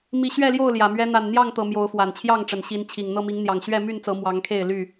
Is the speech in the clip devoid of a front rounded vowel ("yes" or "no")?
no